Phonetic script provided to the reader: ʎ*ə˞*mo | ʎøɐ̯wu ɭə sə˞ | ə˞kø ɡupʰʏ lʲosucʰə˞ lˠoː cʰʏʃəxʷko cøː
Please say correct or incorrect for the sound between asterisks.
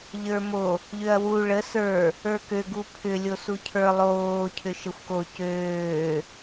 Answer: correct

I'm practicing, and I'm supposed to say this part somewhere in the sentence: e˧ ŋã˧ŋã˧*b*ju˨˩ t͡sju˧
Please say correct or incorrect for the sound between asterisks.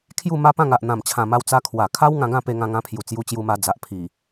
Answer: incorrect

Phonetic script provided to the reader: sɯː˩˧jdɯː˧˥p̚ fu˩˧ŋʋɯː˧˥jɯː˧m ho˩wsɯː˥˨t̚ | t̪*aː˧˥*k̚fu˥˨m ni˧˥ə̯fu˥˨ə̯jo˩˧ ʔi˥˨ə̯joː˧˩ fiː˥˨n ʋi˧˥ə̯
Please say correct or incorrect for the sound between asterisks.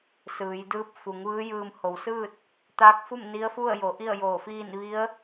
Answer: correct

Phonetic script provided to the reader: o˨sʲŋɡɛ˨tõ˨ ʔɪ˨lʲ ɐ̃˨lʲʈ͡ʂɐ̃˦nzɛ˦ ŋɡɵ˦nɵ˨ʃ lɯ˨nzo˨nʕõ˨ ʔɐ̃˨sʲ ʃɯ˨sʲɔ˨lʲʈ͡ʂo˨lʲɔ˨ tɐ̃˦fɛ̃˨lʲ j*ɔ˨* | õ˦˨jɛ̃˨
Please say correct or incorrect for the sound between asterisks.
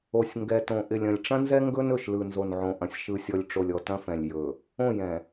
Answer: incorrect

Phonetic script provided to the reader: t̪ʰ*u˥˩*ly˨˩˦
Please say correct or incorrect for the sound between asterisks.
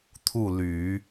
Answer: correct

